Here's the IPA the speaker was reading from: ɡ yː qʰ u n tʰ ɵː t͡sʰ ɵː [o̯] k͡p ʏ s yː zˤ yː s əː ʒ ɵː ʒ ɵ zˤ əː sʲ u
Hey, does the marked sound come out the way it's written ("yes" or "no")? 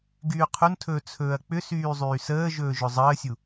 no